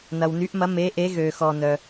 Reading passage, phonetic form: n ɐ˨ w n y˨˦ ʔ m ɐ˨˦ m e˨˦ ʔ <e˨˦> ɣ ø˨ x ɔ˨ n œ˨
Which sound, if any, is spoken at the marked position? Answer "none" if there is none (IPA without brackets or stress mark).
e˨˦